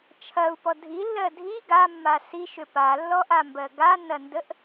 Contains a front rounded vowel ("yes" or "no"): yes